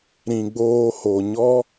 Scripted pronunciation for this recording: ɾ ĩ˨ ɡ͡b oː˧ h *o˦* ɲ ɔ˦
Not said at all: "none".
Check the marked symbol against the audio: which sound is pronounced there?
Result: o˨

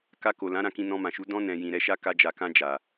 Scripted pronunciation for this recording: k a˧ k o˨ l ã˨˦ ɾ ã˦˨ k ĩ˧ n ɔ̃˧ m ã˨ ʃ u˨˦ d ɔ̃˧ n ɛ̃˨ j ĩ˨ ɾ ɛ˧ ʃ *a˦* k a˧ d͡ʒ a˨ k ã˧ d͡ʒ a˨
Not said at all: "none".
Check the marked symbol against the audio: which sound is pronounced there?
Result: a˦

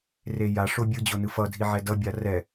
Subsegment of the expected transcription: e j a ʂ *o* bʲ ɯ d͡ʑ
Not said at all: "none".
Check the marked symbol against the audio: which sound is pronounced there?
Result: o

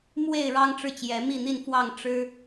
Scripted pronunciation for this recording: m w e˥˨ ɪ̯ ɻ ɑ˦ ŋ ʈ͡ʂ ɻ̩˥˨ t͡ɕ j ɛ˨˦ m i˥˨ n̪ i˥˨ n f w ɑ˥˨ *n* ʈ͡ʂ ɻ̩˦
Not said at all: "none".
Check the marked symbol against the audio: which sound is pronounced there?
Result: ŋ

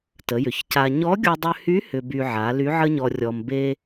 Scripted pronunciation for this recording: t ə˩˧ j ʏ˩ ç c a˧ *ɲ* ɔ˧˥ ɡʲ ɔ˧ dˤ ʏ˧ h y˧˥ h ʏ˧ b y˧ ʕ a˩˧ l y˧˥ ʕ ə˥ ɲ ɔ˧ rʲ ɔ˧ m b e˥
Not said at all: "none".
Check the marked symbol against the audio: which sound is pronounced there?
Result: ɲ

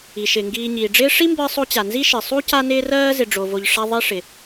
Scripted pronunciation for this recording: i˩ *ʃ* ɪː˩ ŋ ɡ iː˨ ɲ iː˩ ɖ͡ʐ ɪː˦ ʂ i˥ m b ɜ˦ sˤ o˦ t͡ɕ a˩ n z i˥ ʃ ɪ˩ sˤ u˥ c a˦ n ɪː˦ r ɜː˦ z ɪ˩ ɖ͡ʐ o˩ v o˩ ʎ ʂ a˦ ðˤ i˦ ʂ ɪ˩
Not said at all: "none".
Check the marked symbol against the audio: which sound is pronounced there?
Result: ʃ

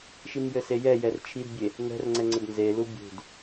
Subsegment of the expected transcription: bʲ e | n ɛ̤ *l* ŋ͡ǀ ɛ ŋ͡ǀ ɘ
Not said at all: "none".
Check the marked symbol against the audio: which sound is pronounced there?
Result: r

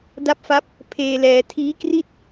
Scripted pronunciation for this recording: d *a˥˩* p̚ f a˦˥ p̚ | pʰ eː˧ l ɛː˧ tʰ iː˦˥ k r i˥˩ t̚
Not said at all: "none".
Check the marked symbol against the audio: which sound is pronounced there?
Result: a˦˥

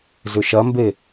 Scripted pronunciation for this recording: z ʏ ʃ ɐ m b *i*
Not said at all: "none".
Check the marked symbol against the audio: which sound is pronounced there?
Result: e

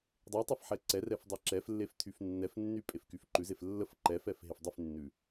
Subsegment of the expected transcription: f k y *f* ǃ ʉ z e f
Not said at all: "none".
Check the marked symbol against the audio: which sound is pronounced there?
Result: f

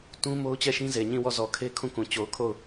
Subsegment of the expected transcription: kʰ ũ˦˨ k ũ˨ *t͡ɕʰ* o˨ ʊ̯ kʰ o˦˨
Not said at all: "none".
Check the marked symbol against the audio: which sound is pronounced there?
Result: t͡ɕ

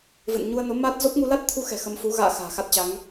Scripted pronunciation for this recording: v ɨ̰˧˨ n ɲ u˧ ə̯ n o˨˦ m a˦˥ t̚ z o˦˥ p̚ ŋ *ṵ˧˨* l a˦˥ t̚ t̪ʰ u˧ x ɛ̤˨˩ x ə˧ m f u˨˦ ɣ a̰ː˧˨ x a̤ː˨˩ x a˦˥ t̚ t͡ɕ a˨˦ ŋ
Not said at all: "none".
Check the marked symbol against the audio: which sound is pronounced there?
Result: u˧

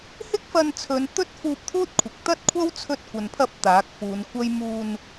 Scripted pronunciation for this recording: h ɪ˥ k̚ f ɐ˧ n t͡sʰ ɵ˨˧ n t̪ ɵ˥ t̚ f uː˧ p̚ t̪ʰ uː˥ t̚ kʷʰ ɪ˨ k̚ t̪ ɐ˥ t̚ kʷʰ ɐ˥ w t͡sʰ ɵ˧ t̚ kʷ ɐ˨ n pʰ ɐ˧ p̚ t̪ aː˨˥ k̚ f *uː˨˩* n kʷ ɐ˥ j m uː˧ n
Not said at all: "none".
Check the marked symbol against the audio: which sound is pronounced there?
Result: uː˨˧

